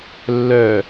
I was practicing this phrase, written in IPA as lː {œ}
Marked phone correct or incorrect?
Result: correct